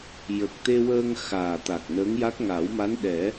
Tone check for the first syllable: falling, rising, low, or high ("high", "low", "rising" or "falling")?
low